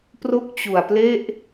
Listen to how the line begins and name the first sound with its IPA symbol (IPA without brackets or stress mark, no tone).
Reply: p